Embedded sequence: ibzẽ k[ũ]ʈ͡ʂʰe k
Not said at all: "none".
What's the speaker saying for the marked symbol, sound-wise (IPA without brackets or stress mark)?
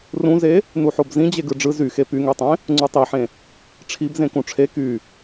ũ